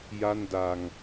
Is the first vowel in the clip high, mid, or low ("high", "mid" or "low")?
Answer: low